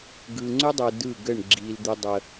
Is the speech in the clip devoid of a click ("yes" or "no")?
no